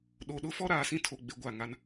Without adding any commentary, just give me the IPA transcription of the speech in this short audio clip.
ɗ o˨ ɗ ʊ˦ f ɔ˦ ɾ aː˨ s ĩ˦ tʰ o˨ ɡ͡b e˨ ɡʷ a˦˨ ŋ a˦ n

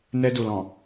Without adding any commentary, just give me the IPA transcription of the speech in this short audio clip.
n ɛ˦ d u˨ l ɔ̃˨

